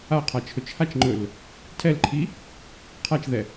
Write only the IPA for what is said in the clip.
a qʰ a t͡ʃʰ ɵ t͡ʃ h a t͡ʃ ŋ͡ǃ ɵ l | tʰ ɛ l ǃʰ i | qʰ a t͡ʃ ð ɛ

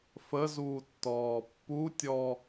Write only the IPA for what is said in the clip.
f ə z uː tː ɔː pː u tʲ ɔ

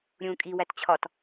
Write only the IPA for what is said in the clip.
ɾʲ ũː kʼ i w æ t t͡ɕʰ ɒ t

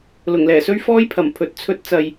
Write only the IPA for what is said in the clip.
l ʊ˨˩ ŋ l ɛː˨˩ s ɵ˥ ɥ f ɔː˥ j pʰ ɐ˨˩ m pʰ ɵ˨˥ t̚ t͡sʰ ɵ˥ t̚ t͡s ɐ˧ j

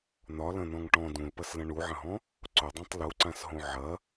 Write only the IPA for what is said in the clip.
n̪ ɒ l ɐ̃ n̪ ɔ̃ ŋ ʈ ɔ̃ d ũ l p ɐ s l ɐ̃ ɳ u ʕ ɐ̃ ɦ ɔ̃ | ǀ ʊ dˤ ẽ tˤ l u ǀ ã s ɦ õ ʕ ɐ

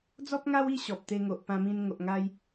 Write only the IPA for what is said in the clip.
d͡z ɔ˦ p̚ ŋ a˦ w i˥˧ ɕ ɔ˨ p̚ t̪ e˧ ŋ o˨ ʔ p ã˧ m ĩ˧ n ŋ o˨ ʔ ŋ a˧ j

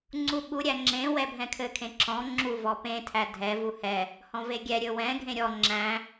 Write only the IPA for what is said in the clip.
ŋ͡ǀ u ɓ u ɾʲ æ ŋ͡ǁ ẽ w ɛ bʱ ɛ̃ kʰ ɘ kʰ ẽ ǁ ɔ̃ ŋ͡ǁ u v ɔ p ẽ tʰ æ dʱ ɛ v u h ɛ | h ɔ̃ v e ɡʲ ɛ ɾʲ ɵ w ɛ̃ ɡʱ ẽ ɾʲ ɔ ŋ͡ǁ æ̃

